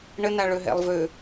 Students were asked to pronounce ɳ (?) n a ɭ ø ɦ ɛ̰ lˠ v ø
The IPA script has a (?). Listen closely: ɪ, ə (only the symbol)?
ə